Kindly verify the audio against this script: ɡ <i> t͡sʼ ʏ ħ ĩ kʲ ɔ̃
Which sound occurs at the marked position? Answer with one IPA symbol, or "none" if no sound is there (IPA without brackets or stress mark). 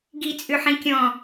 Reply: i